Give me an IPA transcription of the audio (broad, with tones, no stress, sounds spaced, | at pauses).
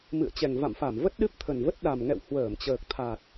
m ɨ̰˧˨ ə̯ t͡ɕ ɛ˨˩ ŋ v a̰˧˨ m f a˧˩ m v ə˦˥ t̚ ɗ ɨ˦˥ p̚ t̪ʰ ə˨˩ n v ə˦˥ t̚ ɗ a˨˩ m ŋ ɛ̰˧˨ w h w əː˧˩ m t͡ɕ əː˨˩ k̚ t̪ʰ a˨˩ t̚